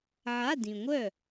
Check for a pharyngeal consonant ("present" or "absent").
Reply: present